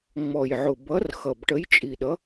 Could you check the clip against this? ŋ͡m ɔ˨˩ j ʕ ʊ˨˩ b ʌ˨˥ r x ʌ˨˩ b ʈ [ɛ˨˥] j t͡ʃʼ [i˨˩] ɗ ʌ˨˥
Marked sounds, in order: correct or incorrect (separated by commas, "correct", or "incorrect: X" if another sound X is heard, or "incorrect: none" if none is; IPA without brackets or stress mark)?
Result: incorrect: ə˨˥, correct